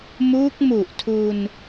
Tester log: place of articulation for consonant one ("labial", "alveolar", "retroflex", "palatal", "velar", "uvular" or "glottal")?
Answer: labial